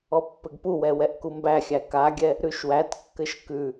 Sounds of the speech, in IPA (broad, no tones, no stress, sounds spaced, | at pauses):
ɔ pː ɘ ɡ p u w ɛ w ɛ ʔ k u m b æ xʲ æ k a ɡʲ ɛ | ɾ ʉ ʃ w æ t kː ɘ ʃ k ʉ